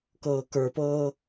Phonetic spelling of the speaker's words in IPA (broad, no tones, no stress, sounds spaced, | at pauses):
k ɤː k ə˞ p ɤː